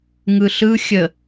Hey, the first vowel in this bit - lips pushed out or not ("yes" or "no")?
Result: no